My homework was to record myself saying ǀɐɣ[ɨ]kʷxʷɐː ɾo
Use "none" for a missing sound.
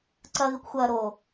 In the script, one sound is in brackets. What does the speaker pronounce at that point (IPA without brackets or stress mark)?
ɨ